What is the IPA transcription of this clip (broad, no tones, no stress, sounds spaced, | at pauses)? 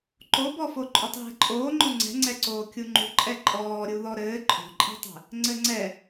ǃ o b ɔ f o ǃʼ o tˤ ɦ ɛ̤ ǃʼ oː ŋ͡ǃ o ŋ͡ǀ ɛ̤ ŋ͡ǀ ɛ ǀ oː kʲ u ŋ͡ǃ ṳ ǃʼ ɛ ǃʼ ɔː ɾʲ u ð ɔ ɾ ɘː ǃʼ o̤ ǃʼ i̤ tˤ ɛ̤ | ŋ͡ǀ ɘ ŋ͡ǀ ɛ